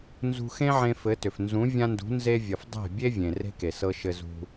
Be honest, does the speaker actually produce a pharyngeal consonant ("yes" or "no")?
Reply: yes